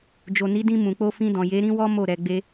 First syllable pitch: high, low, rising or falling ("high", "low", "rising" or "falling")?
low